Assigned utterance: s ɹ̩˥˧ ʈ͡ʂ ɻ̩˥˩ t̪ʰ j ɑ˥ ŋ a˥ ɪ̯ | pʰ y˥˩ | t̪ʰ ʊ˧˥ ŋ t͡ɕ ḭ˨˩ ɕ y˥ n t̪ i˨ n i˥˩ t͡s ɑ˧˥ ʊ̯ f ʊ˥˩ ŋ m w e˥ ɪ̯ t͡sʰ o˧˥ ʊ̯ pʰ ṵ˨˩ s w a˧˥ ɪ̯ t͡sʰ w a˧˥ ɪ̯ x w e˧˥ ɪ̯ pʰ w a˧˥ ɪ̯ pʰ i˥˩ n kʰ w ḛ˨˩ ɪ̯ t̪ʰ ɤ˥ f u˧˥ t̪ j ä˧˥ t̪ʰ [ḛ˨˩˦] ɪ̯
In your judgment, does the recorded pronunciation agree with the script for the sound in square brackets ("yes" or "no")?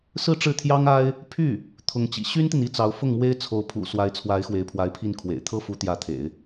yes